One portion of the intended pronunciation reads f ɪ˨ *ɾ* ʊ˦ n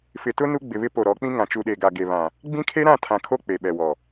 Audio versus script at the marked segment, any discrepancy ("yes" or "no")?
yes